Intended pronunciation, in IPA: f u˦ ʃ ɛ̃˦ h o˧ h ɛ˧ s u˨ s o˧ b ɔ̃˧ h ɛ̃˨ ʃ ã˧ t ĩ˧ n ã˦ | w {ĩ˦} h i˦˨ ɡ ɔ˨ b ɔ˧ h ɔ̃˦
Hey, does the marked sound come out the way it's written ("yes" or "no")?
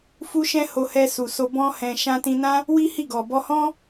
no